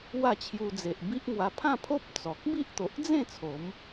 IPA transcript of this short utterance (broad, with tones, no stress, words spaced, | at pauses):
wa˥˧t͡ɕʰju˧d͡ze˨ʔ bi˦ʔŋwa˧ pʰã˥˧pʰo˦p̚ t͡sɔ˨k̚ bi˦ʔt̪o˨ʔd͡zẽ˥˧ t͡sʰo˨˦m